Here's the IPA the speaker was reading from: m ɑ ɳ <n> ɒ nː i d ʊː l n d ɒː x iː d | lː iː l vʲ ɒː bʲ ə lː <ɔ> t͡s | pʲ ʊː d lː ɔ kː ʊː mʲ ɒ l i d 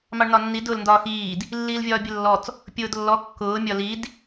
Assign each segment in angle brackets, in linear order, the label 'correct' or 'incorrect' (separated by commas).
correct, correct